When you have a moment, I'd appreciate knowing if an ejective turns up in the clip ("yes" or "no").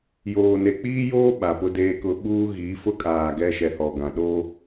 yes